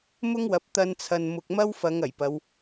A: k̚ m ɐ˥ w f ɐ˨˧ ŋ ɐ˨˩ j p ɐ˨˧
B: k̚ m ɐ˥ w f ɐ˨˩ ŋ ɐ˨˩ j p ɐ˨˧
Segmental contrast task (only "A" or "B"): A